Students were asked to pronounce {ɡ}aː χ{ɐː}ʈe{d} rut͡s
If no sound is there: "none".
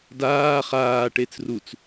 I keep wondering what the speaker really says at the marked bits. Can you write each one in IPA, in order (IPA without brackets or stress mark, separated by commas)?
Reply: d, aː, t͡s